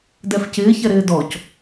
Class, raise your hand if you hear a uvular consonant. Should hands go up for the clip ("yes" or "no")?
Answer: no